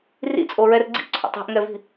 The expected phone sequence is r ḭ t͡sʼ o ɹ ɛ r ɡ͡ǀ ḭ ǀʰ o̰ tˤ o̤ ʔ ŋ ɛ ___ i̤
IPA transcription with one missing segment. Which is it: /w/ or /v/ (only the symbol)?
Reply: v